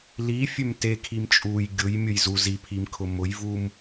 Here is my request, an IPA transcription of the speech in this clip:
lifʲøm tekʰim t͡ʃʼuj ɡʲʊjmʲʊj zu zipʰimkʰʊ mʊjvum

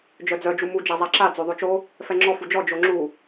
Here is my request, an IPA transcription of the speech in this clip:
d͡ʒœd͡zœ d͡ʒumu d͡ʒazˤaǁa d͡zoðˤot͡ʃo | fɛŋ͡ǁɔ fud͡ʒɔ d͡ʒoŋ͡ǁu

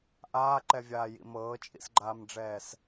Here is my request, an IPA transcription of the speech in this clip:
ʔaːǃɛvʲaːjḭ mɤːt͡ʃʼḭsɡ͡ǃaːmɖ͡ʐɛːs

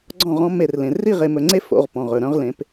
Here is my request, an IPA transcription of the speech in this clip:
ɡ͡ǀɔ̃˦˨ʁɔ̃˦ me˦˨rlẽ˨ ri˦˨ʁe˨mɵ˨ŋ͡ǀe˦ fo̰˨˦ʁpɔ̃˨ʁ ɵ˨ɾœ̃˦ʁlẽ˨˦p

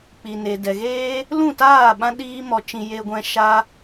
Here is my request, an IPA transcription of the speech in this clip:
k͡pi˨ne˨ dɛ˨ɣeː˦ | lũ˦˨taː˦˨ ɓã˦ɗiː˦mɔ˧t͡ʃĩ˧ je˧ɡʷɛ̃˧ ʃa˦

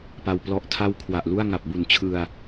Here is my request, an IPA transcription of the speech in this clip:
pa˧wplɔ˦˥ʔ tʰa˦˥w kʰwa˨˩ʔlu˥˩a̯ ŋa˨˩p̚bu˨˩nt͡ɕʰɯ˧a̯

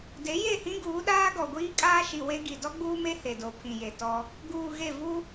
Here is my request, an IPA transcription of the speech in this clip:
de˨˦je˦˨hĩ˦ɡuː˨˦ ɗaː˦ɡɔ˨ɡʷiː˦ kʼaː˦ʃi˨ we˦ɡi˨ dɔ˦ɡ͡buː˦me˦ he˨do˨pʰĩ˨je˨ tɔ˦ | ɡuː˨ ɣe˦˨ vu˦

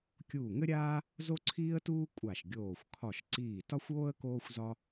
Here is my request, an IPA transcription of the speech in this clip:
kʲuː˧˩ŋɘ˥ɾʲaː˥ | zo˥ǀʰiː˥ə̯tuː˥ kʷʼa˧˩ʃ ɡʲoː˧˩xʷ kʰɒ˧˩ʃǀiː˧˩ tɒ˥xʷoː˥ə̯ koː˥xʷzɒ˥

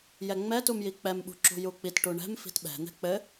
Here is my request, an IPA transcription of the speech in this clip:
jɛŋ͡mɛtumji k͡pɛmɓṳǁṳ juk͡pit ʈuɳɛ̤m fi̤tɓɛ̤n̪ɛ̤ k͡pɘ

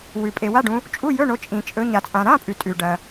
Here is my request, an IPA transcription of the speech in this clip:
wʉ˩ pʼe˩ wa˧˥˧ɖũ˨˦ | t͡ʃʼu˧˥˧jɵ˧˥˧ɳo˨˦ t͡ʃʼĩ˩t͡ʃʼɵ˨˦ ɲa˩t͡sʼã˩ɾã˧˥˧pʼʉ˩ tʼʉ˩ɖɐ˩

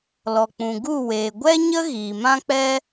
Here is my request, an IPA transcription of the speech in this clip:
lɔ˨k͡pũ˨ɡu˦˨weː˨ ɡʷɛ˦ɲə˦ ɣiː˨ mã˦k͡pɛ˦

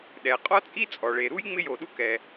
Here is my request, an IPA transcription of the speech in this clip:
ɗɛ˩ qʼɔ˥t͡sʼi˥ t͡sʼɔ˩ɭe˩ɾu˥j ŋ͡mɪ˥jo˩ɗu˥kɛ˩

